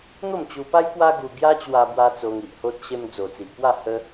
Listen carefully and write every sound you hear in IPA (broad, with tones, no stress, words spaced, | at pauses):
n̪o˥˧mt͡ɕu˧pa˦j kwa˦ɡu˧ ɡja˦ t͡ɕwa˧bwa˧ t͡so˧ŋi˨ʔho˦t̚ ɕe˧md͡zo˨˩t͡si˨ʔpwa˥˧ hə˦